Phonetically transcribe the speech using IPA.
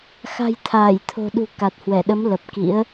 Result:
xa̤˨˩j t̪ʰaː˧˩jt̪ʰo̤˨˩ɗṳ˨˩ ka˨˩t̚hwɛ˧˩ɗə˨˦m lə˨˩p̚kḭ˧˥ə̯

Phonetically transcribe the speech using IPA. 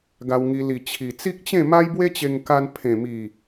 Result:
ɡa˧wŋi˧ li˨˩ t͡ɕʰi˨˩ t͡si˦k̚t͡ɕẽ˥˧ma˦j bwe˦t͡ɕe˧ŋka˧n pʰẽ˨˩mi˨˩

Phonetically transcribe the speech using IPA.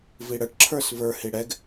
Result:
viɽəʈǁʰə˞s və˞hi ɽɛɡ

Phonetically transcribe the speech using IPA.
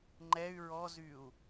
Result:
ŋ͡ǃɛy̯ ɹɔzyu̯

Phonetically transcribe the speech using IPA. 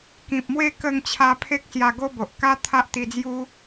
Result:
kĩ˨p̚mwe˥˧ kə˥˧ŋt͡ɕʰa˦ pʰe˦k̚sja˧ɡo˦bo˨ʔ ka˦t̪ʰa˦ʔt̪i˧d͡zju˦

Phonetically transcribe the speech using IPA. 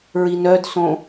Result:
ɹinœdsõ

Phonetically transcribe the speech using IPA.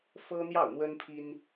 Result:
fɤ˥n̪jɑ˥˩ʊ̯n̪wə˥npʰi˥n

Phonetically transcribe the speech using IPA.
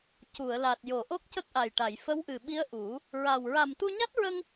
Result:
cu˨˩˨ə̯la˨˩t̚jo˨˩˨ ʔo˦˥k̚cə˦˥k̚ʔa˨˩jʈa˨˩˨j fə˧˥wʔɨ˨˩ɓi˧˥ə̯ ʔu˨˩˦ | ɹa˨˩w ɹa˨˩mt̪u˧ɲa˦˥t̚ɹə˧ŋ

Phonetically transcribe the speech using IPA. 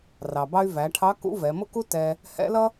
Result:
rɑ˩bɑ˧y̯væ˩˧ʈʰɑ˧˥ kṵ˧˥vɛ˩˧mʊ˥ku˥ tɛ˧ | hɛ̰˧˥lʌ˥

